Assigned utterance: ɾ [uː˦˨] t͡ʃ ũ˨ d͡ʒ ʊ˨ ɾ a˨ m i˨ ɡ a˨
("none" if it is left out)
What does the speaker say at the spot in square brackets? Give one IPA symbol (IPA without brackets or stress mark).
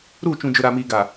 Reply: uː˦˨